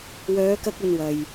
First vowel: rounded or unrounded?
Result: rounded